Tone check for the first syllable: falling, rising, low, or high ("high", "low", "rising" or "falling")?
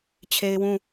high